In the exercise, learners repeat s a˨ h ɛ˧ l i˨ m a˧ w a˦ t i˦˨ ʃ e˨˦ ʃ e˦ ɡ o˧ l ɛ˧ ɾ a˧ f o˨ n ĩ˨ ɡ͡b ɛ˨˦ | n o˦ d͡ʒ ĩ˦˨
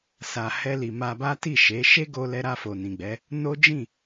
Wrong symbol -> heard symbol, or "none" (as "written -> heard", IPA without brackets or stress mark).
w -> b